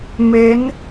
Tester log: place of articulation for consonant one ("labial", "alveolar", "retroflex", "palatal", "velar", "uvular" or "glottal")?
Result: labial